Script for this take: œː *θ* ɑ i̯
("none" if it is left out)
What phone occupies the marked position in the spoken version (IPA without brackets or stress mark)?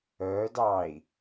d